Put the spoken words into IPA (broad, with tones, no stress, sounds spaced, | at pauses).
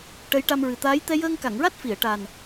ʈ ə˧˥ j ʈ a˧ m ɹ ɨ˨˩ t̪ aː˧˥ j t̪ ɛ˧ j əː˧ ŋ k a˨˩˨ ŋ ɹ a˦˥ t̚ f i˨˩˨ ə̯ ʈ a˨˩ n